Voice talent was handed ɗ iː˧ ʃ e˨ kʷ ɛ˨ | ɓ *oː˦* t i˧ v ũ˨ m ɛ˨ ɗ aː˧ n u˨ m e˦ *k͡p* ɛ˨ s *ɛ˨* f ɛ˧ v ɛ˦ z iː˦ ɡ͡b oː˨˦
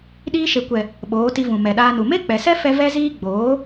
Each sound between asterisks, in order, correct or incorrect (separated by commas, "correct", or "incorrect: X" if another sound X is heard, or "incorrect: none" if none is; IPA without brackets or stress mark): incorrect: oː˨˦, correct, incorrect: ɛ˦